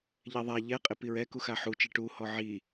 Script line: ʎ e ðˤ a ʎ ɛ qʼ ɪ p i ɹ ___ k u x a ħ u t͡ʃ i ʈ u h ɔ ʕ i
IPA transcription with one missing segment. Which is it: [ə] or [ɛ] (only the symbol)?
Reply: ɛ